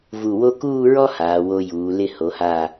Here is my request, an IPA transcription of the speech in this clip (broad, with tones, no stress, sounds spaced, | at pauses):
v u˧˩ w o˥ k uː˥˧ ɹ ɔ˥ h aː˩˧ w o˧ j uː˩˧ l ɪ˥˧ h o˩˧ h aː˧˩